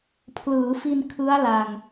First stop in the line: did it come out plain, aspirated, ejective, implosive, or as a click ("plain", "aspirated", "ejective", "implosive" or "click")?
aspirated